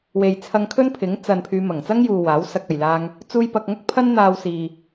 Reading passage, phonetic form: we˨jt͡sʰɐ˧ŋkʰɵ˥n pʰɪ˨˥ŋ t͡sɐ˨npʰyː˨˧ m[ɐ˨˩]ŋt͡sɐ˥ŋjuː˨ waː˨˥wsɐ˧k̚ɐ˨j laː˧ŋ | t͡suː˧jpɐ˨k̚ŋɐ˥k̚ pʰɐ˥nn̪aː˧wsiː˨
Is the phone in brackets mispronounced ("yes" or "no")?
no